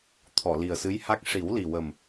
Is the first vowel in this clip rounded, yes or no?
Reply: yes